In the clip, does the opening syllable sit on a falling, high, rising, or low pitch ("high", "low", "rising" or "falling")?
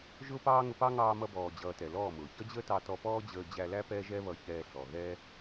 high